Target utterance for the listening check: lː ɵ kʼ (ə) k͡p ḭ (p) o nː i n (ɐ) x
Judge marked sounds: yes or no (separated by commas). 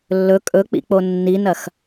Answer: no, no, yes